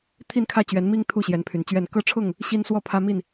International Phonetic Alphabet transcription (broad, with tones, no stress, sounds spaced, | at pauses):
t̪ʰ i˥˨ n kʰ ä˥˨ t͡ɕ ɥ ɛ˨˦ n m i˦ ŋ t̪ʰ u˥˨ ɕ j ɛ˨˦ n pʰ y˨˩ n t͡ɕ ɥ ɛ˥˨ n k ɤ˥˨ ʈ͡ʂʰ ʊ˥˨ ŋ | ɕ i˦ n s w ɔ˥˨ pʰ ä˦ m i˥˨ n